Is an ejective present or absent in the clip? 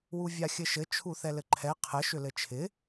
absent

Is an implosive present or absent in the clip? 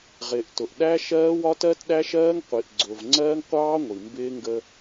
present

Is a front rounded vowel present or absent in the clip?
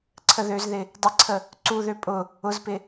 present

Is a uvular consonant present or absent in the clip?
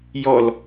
absent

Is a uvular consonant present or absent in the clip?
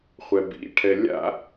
present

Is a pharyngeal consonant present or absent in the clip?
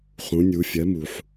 present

